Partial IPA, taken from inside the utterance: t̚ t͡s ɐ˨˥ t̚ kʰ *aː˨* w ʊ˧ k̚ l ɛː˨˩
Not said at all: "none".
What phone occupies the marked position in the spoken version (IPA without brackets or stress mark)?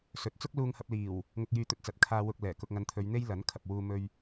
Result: aː˧